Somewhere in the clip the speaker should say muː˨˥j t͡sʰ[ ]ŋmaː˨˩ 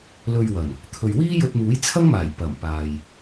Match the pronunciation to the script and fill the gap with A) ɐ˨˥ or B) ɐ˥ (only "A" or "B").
B